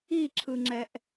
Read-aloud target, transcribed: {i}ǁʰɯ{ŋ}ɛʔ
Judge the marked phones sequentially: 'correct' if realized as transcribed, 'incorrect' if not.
correct, incorrect: ŋ͡ǁ

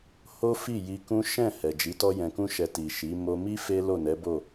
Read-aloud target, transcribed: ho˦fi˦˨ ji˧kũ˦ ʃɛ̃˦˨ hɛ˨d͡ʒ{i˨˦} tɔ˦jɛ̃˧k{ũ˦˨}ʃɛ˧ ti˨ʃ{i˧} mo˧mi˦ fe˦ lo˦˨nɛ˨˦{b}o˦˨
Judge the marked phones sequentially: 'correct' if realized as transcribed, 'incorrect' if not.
correct, incorrect: ũ˦, incorrect: i˨˦, correct

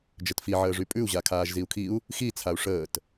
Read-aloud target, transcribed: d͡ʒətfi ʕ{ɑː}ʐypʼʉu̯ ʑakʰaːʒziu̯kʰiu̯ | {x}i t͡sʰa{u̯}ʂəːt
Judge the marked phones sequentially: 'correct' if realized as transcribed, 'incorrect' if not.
incorrect: əː, correct, correct

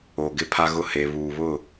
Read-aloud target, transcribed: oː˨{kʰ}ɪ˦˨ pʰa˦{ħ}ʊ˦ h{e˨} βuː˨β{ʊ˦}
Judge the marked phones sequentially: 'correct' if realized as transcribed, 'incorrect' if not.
incorrect: ɡ, incorrect: ɣ, correct, incorrect: ʊ˦˨

